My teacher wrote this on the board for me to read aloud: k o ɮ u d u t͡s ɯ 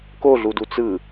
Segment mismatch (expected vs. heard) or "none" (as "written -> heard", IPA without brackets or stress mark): none